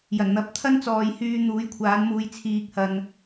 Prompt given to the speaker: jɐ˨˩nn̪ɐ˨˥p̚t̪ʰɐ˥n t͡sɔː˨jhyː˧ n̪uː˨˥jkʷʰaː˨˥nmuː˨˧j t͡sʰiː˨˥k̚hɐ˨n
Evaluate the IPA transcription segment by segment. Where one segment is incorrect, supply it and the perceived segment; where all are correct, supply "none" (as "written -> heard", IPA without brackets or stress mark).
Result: none